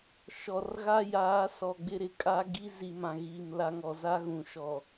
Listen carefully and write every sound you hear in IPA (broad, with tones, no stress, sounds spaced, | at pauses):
ʃ ɔ˨ r ɣ a˦ j aː˨˦ s ɔ˨ ɡ͡b ɪ˦ ɾ ɪ˨ kʼ a˦ ɡ i˦ z i˨ m ã˨ ɣ iː˨ m l a˦ ŋ ɔ˨ z a˦ ɣ ũ˨ ʃ ɔ˨